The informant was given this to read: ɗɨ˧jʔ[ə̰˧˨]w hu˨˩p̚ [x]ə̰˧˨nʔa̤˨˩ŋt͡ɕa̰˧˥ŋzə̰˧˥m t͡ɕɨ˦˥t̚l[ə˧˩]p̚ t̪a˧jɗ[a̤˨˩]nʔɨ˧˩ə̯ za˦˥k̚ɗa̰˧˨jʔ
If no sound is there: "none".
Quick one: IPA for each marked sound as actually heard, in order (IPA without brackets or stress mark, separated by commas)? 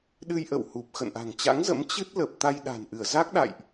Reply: ə̰˧˨, x, ə˨˩, a̤˨˩